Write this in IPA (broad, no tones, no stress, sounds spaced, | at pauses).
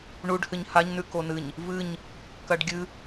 ɳ u ɖ h ɨ ɲ h a ɲ n ʉ k o n ɨ ɲ | v ɨ ɲ | k ɐ ɖ ɡʲ ɨ